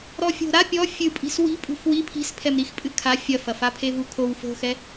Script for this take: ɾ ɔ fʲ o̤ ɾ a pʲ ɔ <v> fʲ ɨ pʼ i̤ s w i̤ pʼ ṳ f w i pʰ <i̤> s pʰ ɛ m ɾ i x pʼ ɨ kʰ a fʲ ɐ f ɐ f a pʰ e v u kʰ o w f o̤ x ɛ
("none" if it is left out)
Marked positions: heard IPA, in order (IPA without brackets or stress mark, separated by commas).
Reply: none, i̤